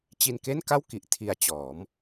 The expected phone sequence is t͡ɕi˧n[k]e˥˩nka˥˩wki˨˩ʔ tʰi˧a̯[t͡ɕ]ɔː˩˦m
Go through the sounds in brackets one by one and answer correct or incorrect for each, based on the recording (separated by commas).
correct, correct